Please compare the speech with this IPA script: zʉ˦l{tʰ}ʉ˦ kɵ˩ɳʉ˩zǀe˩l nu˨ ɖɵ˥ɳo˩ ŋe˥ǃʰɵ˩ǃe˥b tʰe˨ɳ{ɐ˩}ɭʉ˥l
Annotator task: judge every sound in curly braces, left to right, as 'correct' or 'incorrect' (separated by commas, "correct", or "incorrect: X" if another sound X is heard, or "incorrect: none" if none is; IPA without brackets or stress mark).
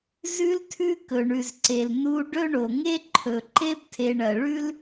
correct, correct